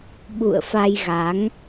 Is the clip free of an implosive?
no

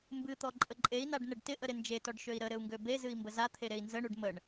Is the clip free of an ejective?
no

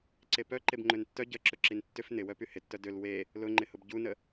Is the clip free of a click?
no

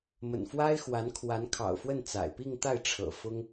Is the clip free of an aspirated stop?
no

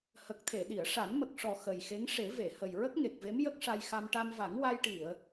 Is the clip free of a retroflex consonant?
no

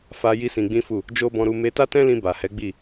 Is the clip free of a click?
yes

